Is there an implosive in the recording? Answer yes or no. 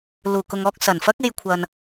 no